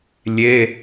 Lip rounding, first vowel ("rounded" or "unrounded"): unrounded